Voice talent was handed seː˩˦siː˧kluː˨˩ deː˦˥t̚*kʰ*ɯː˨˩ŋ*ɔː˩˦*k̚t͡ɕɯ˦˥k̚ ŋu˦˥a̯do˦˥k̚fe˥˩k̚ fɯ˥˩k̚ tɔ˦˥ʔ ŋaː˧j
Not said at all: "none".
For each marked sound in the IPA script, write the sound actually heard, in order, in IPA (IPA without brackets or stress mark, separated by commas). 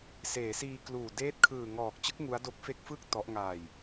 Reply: kʰ, ɔː˨˩